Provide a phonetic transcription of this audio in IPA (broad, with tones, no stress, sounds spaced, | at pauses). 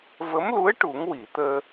v ə˧˥ m l u˧˥ ə̯ ʈ u˨˩˦ ŋ w i˨˩˨ t̪ əː˧